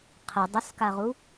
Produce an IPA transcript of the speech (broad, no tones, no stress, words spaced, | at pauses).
qʰə dˤʊskaʁu